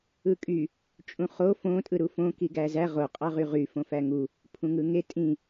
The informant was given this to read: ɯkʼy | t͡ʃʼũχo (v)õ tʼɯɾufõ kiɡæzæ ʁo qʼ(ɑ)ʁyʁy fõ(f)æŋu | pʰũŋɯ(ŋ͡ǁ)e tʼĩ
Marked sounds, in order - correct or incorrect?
incorrect: f, correct, correct, incorrect: ŋ

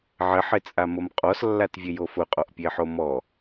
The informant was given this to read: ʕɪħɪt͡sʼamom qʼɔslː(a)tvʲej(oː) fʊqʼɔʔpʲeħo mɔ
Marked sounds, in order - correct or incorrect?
correct, incorrect: o

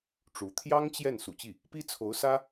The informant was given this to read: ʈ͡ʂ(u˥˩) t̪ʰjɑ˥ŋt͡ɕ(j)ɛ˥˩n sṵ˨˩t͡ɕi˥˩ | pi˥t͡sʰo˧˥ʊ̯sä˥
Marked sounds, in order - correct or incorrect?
incorrect: u˧˥, correct

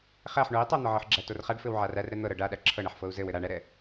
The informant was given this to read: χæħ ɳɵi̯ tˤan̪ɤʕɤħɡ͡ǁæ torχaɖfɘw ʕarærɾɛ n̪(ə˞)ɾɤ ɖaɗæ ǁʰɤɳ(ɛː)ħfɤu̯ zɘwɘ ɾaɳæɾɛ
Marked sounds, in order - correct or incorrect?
incorrect: ɤ, incorrect: ɛ

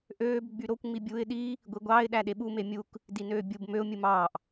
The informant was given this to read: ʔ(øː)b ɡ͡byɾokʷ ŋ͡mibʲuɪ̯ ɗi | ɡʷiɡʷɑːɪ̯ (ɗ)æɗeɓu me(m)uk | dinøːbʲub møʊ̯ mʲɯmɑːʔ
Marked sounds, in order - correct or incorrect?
correct, correct, incorrect: mʲ

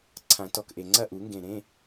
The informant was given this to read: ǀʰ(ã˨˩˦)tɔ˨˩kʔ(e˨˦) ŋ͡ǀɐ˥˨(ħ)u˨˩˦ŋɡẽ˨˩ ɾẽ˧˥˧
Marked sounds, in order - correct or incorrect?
correct, incorrect: e˨˩, incorrect: ʔ

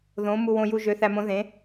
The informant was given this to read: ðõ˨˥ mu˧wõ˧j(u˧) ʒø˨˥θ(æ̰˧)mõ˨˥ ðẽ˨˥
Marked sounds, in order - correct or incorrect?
correct, incorrect: æ˧

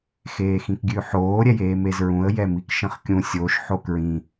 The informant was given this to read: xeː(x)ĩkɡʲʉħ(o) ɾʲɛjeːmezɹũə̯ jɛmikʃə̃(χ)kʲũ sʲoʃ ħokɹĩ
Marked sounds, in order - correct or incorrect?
correct, incorrect: oː, correct

